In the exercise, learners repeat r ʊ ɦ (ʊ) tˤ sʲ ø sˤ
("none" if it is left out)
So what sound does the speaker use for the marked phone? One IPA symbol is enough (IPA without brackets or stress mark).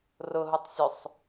u